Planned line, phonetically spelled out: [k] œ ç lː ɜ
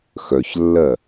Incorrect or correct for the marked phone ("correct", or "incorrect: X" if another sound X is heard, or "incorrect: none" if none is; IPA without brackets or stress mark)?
incorrect: x